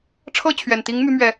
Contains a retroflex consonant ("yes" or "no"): yes